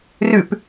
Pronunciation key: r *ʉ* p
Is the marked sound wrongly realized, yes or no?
no